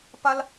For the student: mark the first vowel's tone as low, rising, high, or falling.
high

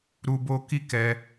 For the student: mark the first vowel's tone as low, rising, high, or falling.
high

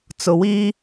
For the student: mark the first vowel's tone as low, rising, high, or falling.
low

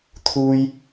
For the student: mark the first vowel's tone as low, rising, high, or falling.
high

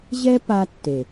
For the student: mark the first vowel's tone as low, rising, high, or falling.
high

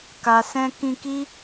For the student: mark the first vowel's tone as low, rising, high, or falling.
low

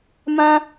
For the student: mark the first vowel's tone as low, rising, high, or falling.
high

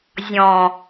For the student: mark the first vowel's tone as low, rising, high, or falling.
low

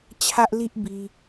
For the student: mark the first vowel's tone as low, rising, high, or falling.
high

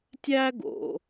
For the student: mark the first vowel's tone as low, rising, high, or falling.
high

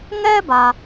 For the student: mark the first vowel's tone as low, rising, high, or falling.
high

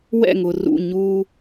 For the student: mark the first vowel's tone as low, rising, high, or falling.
falling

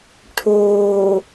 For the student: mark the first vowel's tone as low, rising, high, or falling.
low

